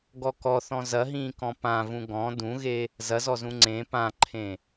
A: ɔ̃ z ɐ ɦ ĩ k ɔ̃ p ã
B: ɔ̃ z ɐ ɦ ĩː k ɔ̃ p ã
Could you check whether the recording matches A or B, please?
B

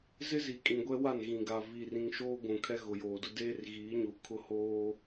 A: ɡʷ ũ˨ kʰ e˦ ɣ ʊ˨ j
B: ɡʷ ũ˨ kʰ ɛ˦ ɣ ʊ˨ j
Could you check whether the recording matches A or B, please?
B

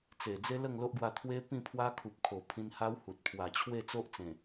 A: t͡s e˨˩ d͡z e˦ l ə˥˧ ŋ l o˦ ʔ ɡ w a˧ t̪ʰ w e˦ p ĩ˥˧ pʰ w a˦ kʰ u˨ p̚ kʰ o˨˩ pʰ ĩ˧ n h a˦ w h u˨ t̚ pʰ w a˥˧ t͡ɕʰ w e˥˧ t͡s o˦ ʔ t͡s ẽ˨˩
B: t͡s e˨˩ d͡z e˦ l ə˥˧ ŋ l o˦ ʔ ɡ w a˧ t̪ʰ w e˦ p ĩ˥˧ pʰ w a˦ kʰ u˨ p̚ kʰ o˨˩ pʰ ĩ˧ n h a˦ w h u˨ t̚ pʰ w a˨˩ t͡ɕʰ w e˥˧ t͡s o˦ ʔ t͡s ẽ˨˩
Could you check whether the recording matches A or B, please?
B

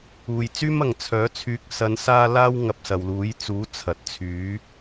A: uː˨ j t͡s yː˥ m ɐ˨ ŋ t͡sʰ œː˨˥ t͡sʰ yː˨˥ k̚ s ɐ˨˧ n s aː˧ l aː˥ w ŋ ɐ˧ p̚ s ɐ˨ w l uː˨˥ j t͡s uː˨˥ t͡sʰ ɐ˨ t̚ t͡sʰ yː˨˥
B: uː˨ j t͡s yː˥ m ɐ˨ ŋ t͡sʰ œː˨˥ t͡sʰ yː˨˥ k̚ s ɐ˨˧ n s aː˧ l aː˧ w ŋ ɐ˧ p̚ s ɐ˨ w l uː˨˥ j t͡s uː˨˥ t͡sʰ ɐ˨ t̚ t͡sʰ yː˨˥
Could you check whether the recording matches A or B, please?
A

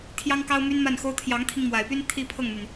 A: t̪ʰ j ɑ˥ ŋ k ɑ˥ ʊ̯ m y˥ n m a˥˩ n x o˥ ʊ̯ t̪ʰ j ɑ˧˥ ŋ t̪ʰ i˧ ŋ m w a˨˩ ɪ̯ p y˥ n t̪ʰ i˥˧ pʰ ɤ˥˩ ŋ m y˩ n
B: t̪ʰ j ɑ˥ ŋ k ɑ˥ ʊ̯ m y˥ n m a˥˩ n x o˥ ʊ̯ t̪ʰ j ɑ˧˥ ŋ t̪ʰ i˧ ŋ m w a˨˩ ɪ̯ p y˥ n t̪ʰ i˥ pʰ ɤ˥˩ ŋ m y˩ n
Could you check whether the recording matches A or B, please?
B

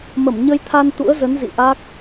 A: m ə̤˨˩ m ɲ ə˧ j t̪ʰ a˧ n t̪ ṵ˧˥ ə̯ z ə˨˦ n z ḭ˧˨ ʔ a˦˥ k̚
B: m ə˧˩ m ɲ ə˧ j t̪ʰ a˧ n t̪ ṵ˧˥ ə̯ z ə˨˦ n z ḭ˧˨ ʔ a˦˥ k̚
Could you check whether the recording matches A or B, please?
B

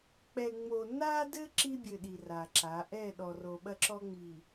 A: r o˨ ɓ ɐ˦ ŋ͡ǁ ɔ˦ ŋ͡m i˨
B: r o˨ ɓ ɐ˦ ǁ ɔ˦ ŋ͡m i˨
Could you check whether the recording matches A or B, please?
B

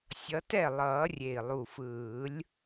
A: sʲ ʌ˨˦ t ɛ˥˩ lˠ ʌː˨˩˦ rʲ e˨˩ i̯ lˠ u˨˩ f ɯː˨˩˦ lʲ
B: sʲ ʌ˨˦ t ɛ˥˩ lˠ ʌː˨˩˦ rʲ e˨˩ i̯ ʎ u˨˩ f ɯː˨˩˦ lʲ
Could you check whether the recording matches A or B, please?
A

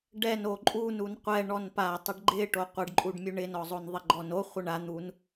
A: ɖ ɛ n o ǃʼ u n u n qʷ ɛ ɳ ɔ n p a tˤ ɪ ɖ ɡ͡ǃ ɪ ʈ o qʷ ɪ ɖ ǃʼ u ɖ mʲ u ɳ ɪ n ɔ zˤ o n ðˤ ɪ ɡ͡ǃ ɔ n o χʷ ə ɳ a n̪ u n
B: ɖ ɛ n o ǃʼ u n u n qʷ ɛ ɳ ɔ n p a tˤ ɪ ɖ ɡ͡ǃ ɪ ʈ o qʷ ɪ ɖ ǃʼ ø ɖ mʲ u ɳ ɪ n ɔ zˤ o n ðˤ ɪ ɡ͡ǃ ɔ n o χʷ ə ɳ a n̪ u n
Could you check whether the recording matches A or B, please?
A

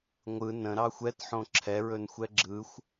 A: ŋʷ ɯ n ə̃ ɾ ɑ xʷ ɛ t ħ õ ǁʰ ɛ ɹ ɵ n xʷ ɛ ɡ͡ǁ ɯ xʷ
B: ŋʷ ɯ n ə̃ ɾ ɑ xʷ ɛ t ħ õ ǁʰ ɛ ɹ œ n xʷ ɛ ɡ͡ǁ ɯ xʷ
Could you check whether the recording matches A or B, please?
A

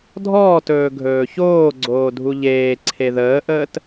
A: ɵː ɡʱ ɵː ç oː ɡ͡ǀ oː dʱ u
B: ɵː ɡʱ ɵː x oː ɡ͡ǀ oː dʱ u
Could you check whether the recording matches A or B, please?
A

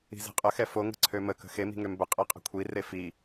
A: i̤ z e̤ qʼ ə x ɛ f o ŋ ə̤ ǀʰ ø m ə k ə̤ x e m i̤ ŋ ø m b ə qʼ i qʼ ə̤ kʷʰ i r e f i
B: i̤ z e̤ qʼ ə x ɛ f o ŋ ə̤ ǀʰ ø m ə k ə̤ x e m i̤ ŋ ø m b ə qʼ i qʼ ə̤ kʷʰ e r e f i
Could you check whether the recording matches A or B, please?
A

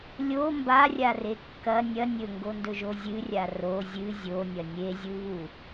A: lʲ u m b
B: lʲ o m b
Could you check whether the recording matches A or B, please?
B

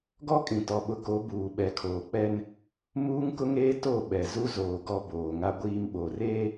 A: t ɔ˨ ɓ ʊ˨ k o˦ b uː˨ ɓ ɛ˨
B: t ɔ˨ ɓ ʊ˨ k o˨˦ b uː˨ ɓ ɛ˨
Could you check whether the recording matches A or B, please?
B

